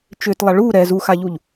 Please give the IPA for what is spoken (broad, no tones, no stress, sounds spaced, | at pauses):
t͡ʃ ʏ t lˠ a ɭ u ɾ ɛ z u x a ʎ u ʎ